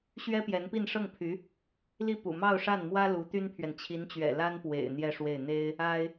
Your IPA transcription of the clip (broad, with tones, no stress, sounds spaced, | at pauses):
ɕ ɥ ɛ˥ p j ɛ˧˥ n p i˥˧ n ʂ ɤ˥˩ ŋ pʰ y˧˥ | l i˥˩ p ṵ˨˩ m ɑ˥˧ ʊ̯ ʂ a˥˩ n m w ä˥ l u˧˥ t̪ y˥ n pʰ ɥ ɛ˨ n t͡ɕʰ i˧˥ n t͡ɕ ɥ ɛ̰˨˩ l a˥ n p w ḛ˨˩ ɪ̯ n̪ j ɛ˥˧ ʂ w e˥˩ ɪ̯ n̪ e˥ ɪ̯ | a˥ ɪ̯